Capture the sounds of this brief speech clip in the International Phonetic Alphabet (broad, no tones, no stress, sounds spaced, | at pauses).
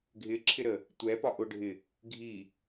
ɡʱ ɪ ǁʰ ɪ ɾ ə | tʷ ɛ p ɒ ʔ ʊ ɖʱ ɪ | ɡʱ i